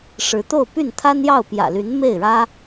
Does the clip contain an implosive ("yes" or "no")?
no